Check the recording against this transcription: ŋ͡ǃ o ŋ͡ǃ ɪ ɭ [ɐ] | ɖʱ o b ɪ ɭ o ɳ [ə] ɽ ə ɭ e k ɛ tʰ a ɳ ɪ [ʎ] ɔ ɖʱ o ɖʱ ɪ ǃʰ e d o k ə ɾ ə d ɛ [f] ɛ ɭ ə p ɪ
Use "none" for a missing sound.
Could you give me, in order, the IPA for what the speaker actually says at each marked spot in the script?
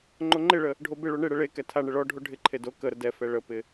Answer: ə, ɪ, ɭ, f

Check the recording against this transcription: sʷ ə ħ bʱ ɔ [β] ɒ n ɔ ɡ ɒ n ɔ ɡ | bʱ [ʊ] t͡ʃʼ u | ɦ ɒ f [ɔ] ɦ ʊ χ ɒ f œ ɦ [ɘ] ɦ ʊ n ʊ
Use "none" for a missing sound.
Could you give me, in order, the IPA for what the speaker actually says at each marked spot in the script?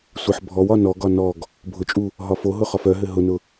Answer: w, ʊ, o, ɘ

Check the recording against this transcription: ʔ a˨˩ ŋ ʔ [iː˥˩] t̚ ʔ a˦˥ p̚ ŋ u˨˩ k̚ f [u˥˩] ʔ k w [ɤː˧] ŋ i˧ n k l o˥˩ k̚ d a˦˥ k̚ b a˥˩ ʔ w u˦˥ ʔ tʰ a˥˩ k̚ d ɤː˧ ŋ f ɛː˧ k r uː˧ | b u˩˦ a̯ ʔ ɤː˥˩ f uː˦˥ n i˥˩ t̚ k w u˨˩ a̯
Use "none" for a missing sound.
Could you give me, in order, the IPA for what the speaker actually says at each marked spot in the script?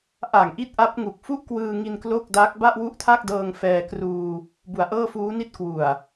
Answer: i˥˩, u˥˩, ɯː˧

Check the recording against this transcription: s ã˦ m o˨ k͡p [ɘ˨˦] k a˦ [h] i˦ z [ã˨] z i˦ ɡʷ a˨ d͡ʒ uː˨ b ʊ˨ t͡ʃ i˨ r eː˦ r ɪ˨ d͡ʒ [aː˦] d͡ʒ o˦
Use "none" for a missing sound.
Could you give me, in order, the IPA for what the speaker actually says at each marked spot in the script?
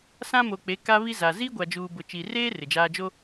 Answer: e˨˦, β, a˨, aː˦

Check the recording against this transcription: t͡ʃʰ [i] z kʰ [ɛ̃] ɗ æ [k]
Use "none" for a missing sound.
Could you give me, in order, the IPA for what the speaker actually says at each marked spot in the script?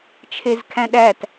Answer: e, æ̃, t

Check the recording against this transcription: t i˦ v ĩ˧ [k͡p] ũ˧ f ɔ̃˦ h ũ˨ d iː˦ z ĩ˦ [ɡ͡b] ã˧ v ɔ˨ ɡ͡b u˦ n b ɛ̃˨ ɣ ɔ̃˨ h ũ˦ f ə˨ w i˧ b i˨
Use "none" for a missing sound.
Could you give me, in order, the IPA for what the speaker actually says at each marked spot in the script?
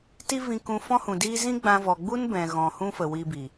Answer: k, ɡ͡b

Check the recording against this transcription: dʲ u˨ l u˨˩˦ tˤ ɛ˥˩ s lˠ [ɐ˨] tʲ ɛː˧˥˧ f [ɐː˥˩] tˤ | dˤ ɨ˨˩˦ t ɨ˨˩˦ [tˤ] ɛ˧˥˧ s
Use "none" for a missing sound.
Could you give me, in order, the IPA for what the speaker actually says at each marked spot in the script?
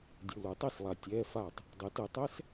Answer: a˨, aː˥˩, tˤ

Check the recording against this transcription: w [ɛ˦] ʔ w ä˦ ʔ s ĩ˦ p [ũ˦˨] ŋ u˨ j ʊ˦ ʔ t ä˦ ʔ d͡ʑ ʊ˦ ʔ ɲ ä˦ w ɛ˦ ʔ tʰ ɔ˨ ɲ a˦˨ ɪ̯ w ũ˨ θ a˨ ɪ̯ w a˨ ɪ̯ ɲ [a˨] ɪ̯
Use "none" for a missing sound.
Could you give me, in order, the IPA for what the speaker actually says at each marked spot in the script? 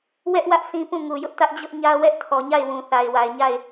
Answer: ɛ˦, ũ˦˨, a˦˨

